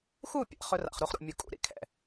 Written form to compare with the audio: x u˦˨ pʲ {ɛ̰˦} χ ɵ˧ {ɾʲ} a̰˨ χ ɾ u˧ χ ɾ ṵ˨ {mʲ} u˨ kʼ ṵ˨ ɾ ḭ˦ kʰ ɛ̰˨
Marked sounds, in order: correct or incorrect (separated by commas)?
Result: incorrect, incorrect, correct